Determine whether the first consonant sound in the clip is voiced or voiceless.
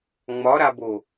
voiced